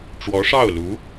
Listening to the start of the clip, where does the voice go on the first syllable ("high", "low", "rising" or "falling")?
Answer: rising